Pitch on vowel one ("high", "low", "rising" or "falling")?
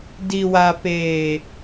low